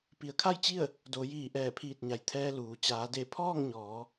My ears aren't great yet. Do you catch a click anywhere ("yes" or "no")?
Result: no